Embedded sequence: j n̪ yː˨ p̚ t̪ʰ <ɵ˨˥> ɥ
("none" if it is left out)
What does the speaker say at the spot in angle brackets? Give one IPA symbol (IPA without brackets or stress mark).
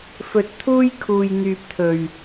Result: ɵ˨˩